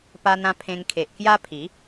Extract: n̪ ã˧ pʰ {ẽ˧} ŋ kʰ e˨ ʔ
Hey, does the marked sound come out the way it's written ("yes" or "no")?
yes